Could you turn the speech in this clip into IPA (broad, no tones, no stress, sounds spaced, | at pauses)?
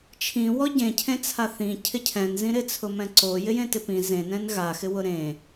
t͡ʃʰ ĩ w ɔ ɟ ẽ cʰ ẽ t͡sʰ a θ ĩ cʰ ɪ cʰ ɛ̃ n z ĩ ɾ ɪ t͡sʰ ʊ m ɛ̃ ǀ o j ɪ j ẽ t ɪ p ĩ z ẽ n ɛ̃ n ɣ a x ɪ w ʊ ɾ ẽ